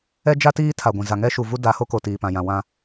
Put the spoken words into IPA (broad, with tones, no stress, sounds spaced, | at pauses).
ɛ˦ d͡ʒ a˦ t iː˦ tʰ a˨ ɡʷ ĩ˨ z a˨ ŋ ɛ˦ ʃ u˨ v u˦ d a˨˦ h o˦ k o˨ t iː˨ p ã˨ j ã˨ w ã˦